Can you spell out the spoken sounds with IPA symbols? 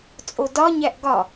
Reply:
t͡sʼodɒ ɲæʔɡɒ

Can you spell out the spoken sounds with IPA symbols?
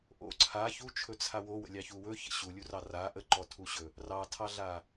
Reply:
ʔo̰ ǀʰa çut͡ʃʰɵt͡sʰa wowə̰lʲɑçu wɵçə̰ ɕulʲurɑ ra ʔəǃɔtʰuɕɵ | rɑtʰɑɮa

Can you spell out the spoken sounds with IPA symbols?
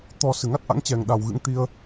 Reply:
t̪ɔ˨˩ sɨ˧˩ŋa˦˥t̚ʔa̰˧˥ŋ t͡ɕɛ˨˩ŋɗa˨˩wɣɨ̰˧˥ŋ t̪i˧ə̯

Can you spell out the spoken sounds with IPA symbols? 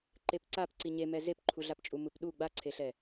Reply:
ǃepǀap ǀiɲemɛ zepǃʰuɮapt͡ʃʼu mɯpɗu ɡ͡baǀʰeɬɛ

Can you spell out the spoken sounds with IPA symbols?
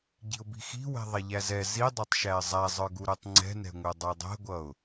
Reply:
ɟi̤ʊ̯bi̤xi̤ wɛ̤ðˤɛʎæzɛ zidˤɛtˤʃæɪ̯ zˤæzˤə˞ɡu ɾutˤŋ͡ǀɛ̤nɛ̤ŋʷɛ dˤə˞dˤɛ̤ɡʷʌʊ̯

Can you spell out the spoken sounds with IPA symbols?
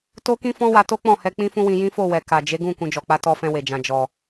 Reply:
to˦kĩ˦fɔ̃˦wa˧ to˦k͡pɔ̃˦˨hɛ˧ k͡pĩ˦fũ˦wĩ˧ jĩ˦fo˦˨wɛ˨ ka˨d͡ʒe˨˦ɡũ˦˨ kũ˨d͡ʒɔ˨ k͡pa˨˦tɔ˧fɛ̃˧ we˨d͡ʒã˨ d͡ʒɔ˨

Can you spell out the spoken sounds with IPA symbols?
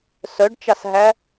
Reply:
sœɖt͡ʃɑsɦæ

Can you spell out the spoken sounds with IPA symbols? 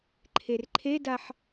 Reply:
ǃʰerǃʰedaħ

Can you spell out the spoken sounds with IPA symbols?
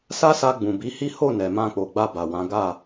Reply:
sa˦sa˧ ɡ͡bũ˨bi˨˦hi˦ ho˦˨nɛ˨mã˧k͡po˨ ɡ͡ba˧ba˨wã˨˦ ɡa˦˨

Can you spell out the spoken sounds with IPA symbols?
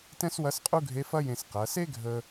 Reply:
tɛ̃˥swɐ˧˥sqʼu˥ɡʱe˧˥ fɐ˥jẽ˧s qɐ˩˧se˥ɡʱə˧

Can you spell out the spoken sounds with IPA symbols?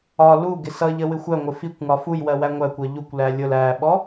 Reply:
ɒ lu ɡɪsʌʎə wɪxʷæŋʷɪ fikʷŋɒ fuj wɜwæŋʷækʷɜ ʎukʷlæ lʲʊl æɓɔ

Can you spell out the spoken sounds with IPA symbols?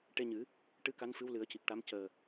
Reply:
ʈe˧ɲɨ˨˩˦ | ʈɨ˧ka˧˥n fɨ˧˥wlɨ˨˩˦ə̯ci˨˩k̚ʈa˧˥m cəː˨˩

